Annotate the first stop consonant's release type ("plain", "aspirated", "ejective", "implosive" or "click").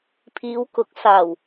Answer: aspirated